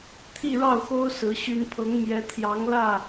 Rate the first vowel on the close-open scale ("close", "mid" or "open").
close